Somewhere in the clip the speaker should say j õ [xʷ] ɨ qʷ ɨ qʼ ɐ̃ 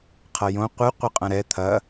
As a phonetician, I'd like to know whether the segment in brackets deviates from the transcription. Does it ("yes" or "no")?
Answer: yes